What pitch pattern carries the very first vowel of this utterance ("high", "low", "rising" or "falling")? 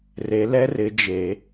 rising